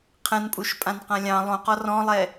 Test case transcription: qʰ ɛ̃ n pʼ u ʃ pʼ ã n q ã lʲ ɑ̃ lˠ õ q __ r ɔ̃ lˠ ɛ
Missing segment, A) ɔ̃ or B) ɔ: B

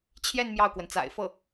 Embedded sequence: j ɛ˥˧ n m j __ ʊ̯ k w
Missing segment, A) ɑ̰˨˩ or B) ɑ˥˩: B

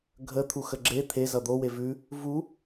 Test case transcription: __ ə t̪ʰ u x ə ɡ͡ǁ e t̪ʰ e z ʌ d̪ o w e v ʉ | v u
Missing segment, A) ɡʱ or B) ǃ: A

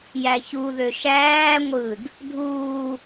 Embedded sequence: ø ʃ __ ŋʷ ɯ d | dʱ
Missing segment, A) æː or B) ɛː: A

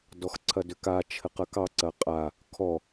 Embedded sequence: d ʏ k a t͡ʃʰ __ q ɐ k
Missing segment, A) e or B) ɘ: B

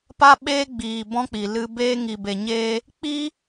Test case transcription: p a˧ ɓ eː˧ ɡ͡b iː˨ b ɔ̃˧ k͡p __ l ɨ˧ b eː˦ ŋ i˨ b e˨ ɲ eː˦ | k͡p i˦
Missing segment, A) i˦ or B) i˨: B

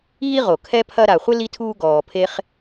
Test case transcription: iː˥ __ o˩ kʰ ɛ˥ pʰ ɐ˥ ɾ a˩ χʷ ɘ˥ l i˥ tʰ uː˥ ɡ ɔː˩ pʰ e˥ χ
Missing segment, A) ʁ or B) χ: A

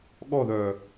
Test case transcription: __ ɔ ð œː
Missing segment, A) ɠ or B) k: A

